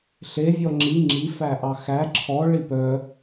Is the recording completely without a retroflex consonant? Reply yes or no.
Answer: no